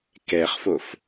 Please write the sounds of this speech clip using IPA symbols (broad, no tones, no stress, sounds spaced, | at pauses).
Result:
k ɛ χ f o f